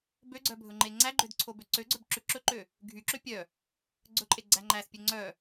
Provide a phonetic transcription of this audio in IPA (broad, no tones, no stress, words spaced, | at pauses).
bøɡ͡ǀœbʱɵŋ͡ǃe ŋ͡ǀæɡ͡ǃødǀʰobø ǀøɡ͡ǀœbǁʉ ǁɵǃø | ɡʱyǁø pʲœ | ɡ͡ǀɵǃʼeɡ͡ǀæ ŋ͡ǃæspʲø ŋ͡ǀœ